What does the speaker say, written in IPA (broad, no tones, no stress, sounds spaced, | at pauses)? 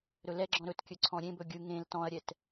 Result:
ɾ ɵ l ɛ ɡ͡ǁ ɔ̃ ɾ ɵ t kʲ ɵ ǀʰ ɔ̃ ɾʲ ẽ b ɵ ɡʲ ɯ ŋ ẽ l t ɔ̃ ɐ̯ ɾʲ ɛ t